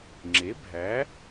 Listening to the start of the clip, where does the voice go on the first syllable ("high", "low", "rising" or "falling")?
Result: rising